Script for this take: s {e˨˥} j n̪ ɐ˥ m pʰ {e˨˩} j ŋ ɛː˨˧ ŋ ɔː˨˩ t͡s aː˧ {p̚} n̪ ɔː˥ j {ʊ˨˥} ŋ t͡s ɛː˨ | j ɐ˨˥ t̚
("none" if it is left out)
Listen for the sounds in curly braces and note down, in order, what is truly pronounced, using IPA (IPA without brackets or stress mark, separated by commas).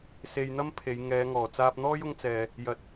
e˧, e˨˧, p̚, ʊ˧